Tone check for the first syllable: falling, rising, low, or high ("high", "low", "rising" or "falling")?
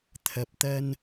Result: low